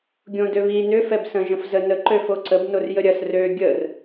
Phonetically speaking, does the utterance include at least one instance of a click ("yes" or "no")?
yes